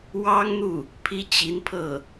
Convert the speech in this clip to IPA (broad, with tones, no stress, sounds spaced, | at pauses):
w ɑ˥ ŋ n̪ u˥˩ | pʰ i˥ t͡ɕ i˧˥ n pʰ ɤ˥˩